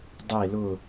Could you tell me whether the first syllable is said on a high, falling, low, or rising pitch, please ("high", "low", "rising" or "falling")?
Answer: low